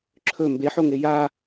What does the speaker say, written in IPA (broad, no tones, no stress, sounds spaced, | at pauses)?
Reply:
ǁʰ ɵ m b e ħ o ŋ e j a